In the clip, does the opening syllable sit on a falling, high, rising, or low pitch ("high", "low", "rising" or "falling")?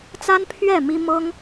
high